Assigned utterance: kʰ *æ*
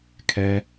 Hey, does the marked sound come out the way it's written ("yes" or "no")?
no